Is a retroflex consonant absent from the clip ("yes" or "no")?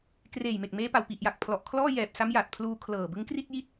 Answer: yes